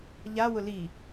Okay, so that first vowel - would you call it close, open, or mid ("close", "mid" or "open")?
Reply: open